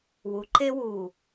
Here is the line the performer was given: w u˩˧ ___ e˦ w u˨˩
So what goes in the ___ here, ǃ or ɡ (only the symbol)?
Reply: ǃ